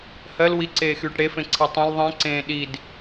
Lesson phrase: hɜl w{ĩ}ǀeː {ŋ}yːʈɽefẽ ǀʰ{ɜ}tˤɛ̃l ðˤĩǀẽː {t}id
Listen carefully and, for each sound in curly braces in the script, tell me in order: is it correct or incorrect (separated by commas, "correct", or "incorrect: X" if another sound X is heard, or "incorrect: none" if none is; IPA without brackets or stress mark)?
incorrect: i, incorrect: x, incorrect: ɛ, incorrect: ɗ